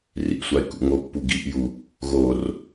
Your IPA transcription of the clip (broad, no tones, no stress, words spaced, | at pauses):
rḭsʷaɪ̯ kṵŋopːu ɡiʔju | ɣor